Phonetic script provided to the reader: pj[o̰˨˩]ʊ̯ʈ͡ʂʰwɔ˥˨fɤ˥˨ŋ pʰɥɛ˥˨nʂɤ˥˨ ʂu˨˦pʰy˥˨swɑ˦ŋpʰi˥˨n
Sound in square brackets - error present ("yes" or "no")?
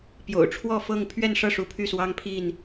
no